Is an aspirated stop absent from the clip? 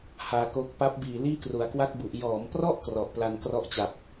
yes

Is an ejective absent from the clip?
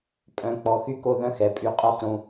no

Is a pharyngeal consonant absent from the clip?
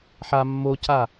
no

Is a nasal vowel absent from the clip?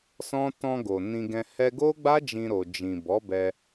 no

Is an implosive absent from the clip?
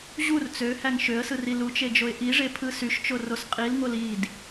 yes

